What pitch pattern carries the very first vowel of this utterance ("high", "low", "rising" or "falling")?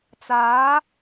rising